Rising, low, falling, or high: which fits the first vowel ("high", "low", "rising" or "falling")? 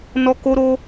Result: high